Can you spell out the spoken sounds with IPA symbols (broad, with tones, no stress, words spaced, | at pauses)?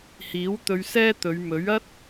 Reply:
hiː˨˥w t̪ɵ˧ɥsɛː˥t̪ɵ˨˧ɥ mɵ˨˥ɥɐ˥t̚